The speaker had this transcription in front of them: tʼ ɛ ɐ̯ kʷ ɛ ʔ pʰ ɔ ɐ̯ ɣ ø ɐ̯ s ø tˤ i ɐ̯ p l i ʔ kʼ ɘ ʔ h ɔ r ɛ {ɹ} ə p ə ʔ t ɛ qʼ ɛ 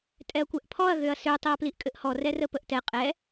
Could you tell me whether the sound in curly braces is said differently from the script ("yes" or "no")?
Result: yes